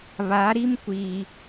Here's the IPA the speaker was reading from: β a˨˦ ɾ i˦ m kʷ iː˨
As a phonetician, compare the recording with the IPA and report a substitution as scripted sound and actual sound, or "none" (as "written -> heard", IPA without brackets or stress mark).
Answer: none